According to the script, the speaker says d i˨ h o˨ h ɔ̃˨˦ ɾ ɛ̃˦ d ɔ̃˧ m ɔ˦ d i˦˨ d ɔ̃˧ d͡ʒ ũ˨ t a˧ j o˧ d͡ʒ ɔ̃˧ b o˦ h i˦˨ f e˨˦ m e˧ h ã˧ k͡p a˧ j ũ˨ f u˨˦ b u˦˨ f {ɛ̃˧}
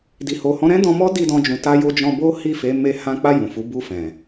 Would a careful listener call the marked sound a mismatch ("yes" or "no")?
yes